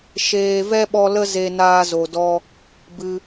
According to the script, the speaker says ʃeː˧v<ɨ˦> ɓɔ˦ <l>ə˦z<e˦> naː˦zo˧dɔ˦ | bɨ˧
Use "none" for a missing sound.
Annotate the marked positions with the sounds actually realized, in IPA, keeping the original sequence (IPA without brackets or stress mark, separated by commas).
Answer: ɛ˦, l, e˧